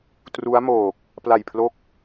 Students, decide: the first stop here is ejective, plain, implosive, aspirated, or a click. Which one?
plain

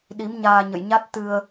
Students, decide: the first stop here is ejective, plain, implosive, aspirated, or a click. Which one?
implosive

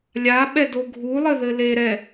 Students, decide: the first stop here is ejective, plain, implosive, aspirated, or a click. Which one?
implosive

